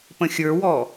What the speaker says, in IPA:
p ə̃ xʲ ə˞ w ɔ

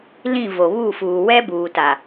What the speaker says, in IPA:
l ĩ˦˨ v o˨ β u˦˨ f uː˨ w ɛ˦ b uː˨ t a˨

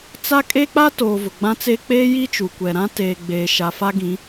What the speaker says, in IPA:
t͡s a˦ kʼ e˦ k͡p a˦ t oː˨ v ʊ˨ ɡ͡b ã˦ t͡s e˦ k͡p eː˦ j i˦ t͡ʃ u˨ kʷ ɛ˨ ɾ ã˦ t eː˨ ɡ͡b eː˨ ʃ a˨ f a˦ ɡ ĩ˨˦

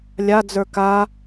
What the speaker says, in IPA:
lʲ a d͡z ə˞ k a

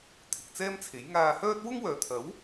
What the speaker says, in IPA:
t̪ʰ ɪ˨ k̚ t͡s ɛː˥ m t͡sʰ e˨˥ j ŋ aː˧ h œː˥ t̚ w ʊ˥ ŋ w œː˨ t̪ʰ ɐ˨˥ w

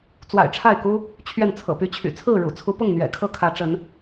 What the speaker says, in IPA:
t͡s w a̰˨˩ ɪ̯ ʈ͡ʂʰ a˥˨ ɪ̯ k u˦ | t͡ɕʰ ɥ ɛ˥˨ n t͡sʰ ɤ̰˨˩ p y˦ t͡ɕʰ y̰˨˩ t͡sʰ ɹ̩˥˨ ɻ ṵ˨˩ t͡sʰ u˨˦ p ʊ˥˨ ŋ n̪ ɥ ɛ̰˨˩ kʰ ɤ˥˨ kʰ ä˨˦ ʈ͡ʂ ə˨˦ n

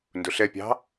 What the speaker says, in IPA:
n d ʊ ɬ ɛ pʲ ɑ̤

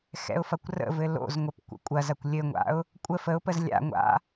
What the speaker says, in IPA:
x ɛ̰ ʊ̯ f ɐ kʷ r ə̰ v ɘ l o̰ z ŋʷ ɘ p kʷ ə̰ kʷʼ ɐ z ɐ kʷ lʲ ɘ ŋʷ a̰ ʊ̯ | kʷʼ ə f ə ʊ̯ p ə z lʲ a̰ ŋʷ a̰

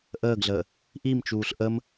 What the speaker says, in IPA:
ʔ əː ɡ ɮ əː | ʔ i m t͡ʃ uː ɬ ʔ ə m

